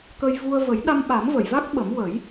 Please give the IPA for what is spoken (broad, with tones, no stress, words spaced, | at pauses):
kə˧jvu˧ə̯ və˨˩˦jɗa˧mɓa˨˩˦mvə˨˩˨j va˦˥k̚ɓə˨˩˦mwə˨˩˦j